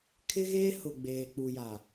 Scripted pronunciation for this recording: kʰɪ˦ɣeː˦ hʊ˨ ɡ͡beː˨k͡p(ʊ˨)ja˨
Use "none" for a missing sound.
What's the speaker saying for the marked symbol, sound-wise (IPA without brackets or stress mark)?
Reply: u˨